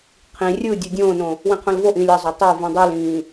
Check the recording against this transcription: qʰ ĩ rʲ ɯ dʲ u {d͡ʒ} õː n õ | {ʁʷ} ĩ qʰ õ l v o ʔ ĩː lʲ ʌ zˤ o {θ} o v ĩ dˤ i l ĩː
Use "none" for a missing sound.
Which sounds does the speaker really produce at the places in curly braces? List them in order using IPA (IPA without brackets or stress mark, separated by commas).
dʲ, w, tˤ